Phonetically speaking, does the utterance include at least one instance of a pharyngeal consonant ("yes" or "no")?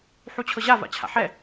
yes